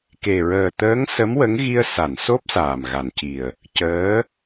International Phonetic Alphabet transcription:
k e˨˩ ɹ əː˨˩ t̪ əː˧˥ ŋ s ə˧˥ m w ə˧˥ ŋ ɣ i˧ ə̯ s a˨˩˨ n s o˦˥ p̚ s aː˨˩ m ɣ a˨˩ n c i˨˩ ə̯ | c əː˧˥

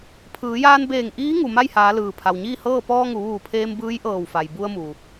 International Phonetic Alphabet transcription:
pʰ ɯː˩˧ j aː˧ n b eː˧˩ ŋ ʔ iː˧˥ ŋ u˩ m a˥˨ j h aː˩˧ l ɯː˩ pʰ a˩ w ɲ iː˥˨ h ɤː˥˨ p ɔː˧ ŋ u˩˧ ʋ uː˧˩ pʰ eː˧ m b ɯː˧˥ j ʔ ɤː˧˩ w f a˩ j b u˧ ə̯ m u˩

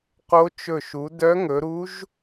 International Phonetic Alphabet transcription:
q o˧˥ t͡ʃ ɵ˧˩ ʃ u˩˧ d œ˧˥ ŋ ɵ˩˧ ɾ u˧˥ ʒ

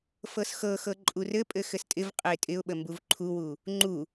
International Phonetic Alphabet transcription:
f ɤ s x ɤ x ɤ ǃʼ u r ɘ pʼ ɘ x ɘ s tʼ ɪ v qʼ ɘ ɪ̯ tʼ ɪ ʊ̯ ɓ ə m b u v ǃʰ u w u | ŋ͡ǃ u

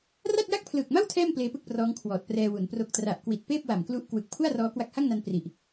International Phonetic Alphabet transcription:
r a˥˩ t̚ j a˥˩ k̚ pʰ l ɯː˨˩ k̚ m a˥˩ w tʰ ɛː˥˩ m p l eː˧ p ɯ˥˩ k̚ p r ɔː˦˥ ŋ kʰ w ɔː˨˩ t̚ p r ɛː˧ w u˩˦ n p r o˨˩ k̚ t r a˨˩ ʔ k w i˨˩ t̚ p eː˥˩ p̚ w a˨˩ m k l u˦˥ ʔ k w ɯ˨˩ k̚ pʰ u˥˩ a̯ r ɔː˦˥ k w a˦˥ k̚ h a˥˩ ŋ n a˧ n p r i˨˩ ʔ

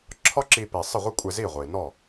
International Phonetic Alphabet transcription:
ǁʰ ɒ˥ ǁ i˧ p i˩ sˤ ɪ˥˩ ʁʷ ɪ˥ kʷʼ e˧ z i˥˩ ʁʷ i˩ n ɔ˥˩

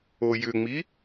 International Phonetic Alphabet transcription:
o j ʏ ŋ͡m i

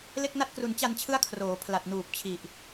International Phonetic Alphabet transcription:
l e˥˩ k̚ n a˥˩ t̚ k r u˧ n t͡ɕ a˧ n t͡ɕʰ ɯ˦˥ a̯ kʰ r oː˩˦ pʰ l a˨˩ t̚ n uː˨˩ p̚ t͡ɕʰ i˨˩ ʔ

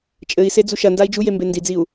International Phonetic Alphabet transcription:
t͡ʃʼ ɘ i̯ s e d͡z u ʃ ɐ n d a i̯ d͡ʒ u j e m b e n d i d͡z i u̯

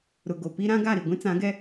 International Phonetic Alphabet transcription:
ɾ ʊ˨ ɡ o˨ p i˦ ɾ ã˦ ɡ a˦˨ ɾ i˨ ɡʷ ĩ˦ t͡s ã˨˦ ɡ ɛ˦

